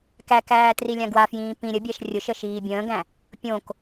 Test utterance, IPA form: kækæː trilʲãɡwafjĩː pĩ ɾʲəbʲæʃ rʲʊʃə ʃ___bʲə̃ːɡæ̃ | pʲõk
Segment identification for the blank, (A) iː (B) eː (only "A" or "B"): A